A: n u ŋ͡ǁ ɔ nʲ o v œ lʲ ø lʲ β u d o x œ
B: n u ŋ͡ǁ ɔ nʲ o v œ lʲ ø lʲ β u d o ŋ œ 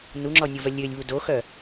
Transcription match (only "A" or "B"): A